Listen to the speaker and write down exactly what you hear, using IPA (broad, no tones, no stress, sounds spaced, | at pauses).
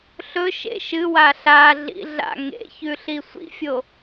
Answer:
ɬ ɵ ʃ ḛ ʃ ɨ w a ɬ a ɮ ḭ ɮ a̰ ŋ ḛ ç ʉ ɬ i sʷ ḭ fʲ o